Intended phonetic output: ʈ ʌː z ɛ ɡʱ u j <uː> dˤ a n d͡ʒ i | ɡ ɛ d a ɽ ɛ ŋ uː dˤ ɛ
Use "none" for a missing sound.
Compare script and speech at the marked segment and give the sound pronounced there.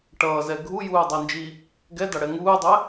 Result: uː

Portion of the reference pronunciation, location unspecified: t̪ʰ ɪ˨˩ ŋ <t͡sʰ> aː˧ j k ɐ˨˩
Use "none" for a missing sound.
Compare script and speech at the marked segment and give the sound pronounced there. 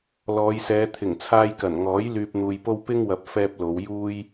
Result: t͡sʰ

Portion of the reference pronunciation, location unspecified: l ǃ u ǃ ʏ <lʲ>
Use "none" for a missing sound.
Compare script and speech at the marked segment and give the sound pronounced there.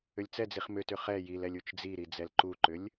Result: lʲ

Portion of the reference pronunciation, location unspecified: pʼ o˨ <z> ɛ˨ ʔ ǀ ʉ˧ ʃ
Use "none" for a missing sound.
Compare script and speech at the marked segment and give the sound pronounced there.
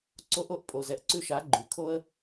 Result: z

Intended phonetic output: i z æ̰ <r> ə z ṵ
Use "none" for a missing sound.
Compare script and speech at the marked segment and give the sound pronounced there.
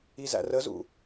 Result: r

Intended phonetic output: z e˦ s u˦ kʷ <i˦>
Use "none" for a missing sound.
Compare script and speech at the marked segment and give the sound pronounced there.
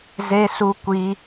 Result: i˦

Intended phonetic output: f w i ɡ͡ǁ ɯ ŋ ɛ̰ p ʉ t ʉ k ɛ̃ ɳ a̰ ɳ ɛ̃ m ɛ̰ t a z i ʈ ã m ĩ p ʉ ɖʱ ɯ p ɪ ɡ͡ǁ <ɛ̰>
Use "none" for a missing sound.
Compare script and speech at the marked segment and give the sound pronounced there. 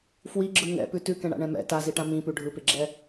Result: ɛ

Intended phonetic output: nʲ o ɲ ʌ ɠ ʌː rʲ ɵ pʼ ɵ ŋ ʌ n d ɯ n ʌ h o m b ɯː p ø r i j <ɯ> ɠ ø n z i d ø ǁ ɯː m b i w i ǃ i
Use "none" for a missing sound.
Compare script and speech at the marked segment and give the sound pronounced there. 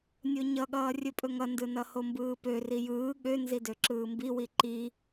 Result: ɯː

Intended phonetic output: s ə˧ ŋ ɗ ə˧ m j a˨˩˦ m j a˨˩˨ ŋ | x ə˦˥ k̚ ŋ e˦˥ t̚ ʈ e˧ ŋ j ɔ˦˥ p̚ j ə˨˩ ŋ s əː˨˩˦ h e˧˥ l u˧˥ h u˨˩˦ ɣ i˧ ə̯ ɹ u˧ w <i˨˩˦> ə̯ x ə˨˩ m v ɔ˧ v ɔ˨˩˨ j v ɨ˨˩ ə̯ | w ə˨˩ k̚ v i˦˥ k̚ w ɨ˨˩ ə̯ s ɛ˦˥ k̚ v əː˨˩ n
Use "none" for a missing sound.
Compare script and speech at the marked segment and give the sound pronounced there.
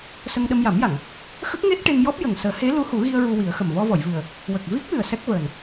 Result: i˨˩˦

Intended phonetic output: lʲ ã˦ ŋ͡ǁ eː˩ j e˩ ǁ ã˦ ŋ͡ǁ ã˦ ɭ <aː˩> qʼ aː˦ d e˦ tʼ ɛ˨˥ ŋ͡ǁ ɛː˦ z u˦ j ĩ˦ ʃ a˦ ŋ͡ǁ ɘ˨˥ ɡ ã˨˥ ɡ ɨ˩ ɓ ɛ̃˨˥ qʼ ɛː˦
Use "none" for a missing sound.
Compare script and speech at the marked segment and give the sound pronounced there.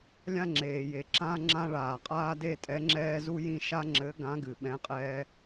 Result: aː˩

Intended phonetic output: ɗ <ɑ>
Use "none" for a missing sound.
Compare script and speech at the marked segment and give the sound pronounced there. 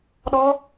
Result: ɔ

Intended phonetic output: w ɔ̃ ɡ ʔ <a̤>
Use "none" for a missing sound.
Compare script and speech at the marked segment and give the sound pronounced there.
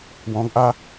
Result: a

